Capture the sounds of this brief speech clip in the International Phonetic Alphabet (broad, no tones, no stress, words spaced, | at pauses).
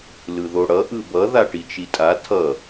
lɯðoɽʌ ʔɯbʌ ðaʈit͡ʃitʼa tʰʌ